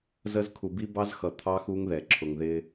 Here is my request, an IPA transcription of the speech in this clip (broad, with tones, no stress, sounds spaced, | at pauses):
z ə˦ z kʰ u˨ b i˦ b ɑ˦ z x ʌ˨ t̪ʰ ɑ˦ x u˦ ŋ ð ɛ˨ ǁʰ ʊ˨ ŋ ð ɪ˦